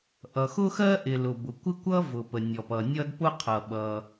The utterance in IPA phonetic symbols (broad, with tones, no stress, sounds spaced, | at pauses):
ʔ ʌ˩ x ʊ˥ x ɜ˥ ʔ ɪ˩ l ʊ˩ b ʊ˩ kʷ ɪ˥ kʷ ʌ˥ v ʊ˩ p ə˩ nʲ ɔ˩ p ʌ˩ nʲ ʌ˥ d p ʊ˥ qʰ ʌ˩ ɓ ʌ˩